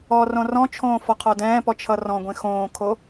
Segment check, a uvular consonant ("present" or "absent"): present